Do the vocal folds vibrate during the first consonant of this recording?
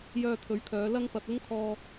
yes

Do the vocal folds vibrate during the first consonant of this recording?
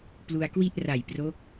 no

